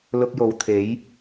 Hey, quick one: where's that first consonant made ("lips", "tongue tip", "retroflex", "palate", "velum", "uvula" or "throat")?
tongue tip